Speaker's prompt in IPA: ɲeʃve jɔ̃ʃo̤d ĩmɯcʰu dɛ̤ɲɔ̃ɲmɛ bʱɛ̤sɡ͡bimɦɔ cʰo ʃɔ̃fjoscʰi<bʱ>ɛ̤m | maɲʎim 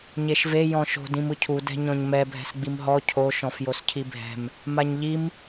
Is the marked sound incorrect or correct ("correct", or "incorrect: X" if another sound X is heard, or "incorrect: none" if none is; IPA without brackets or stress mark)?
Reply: correct